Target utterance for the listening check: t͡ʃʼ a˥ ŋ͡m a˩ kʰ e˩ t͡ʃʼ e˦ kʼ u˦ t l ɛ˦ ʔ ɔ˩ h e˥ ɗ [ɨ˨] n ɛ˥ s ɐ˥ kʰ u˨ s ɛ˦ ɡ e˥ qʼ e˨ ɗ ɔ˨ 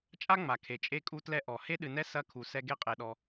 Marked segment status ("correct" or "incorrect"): correct